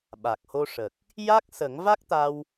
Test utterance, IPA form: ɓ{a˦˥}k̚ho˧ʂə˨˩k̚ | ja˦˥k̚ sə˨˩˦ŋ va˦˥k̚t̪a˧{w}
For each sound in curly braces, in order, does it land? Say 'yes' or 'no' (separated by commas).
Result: no, yes